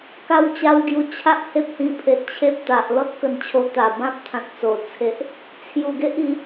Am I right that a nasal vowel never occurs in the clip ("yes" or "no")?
no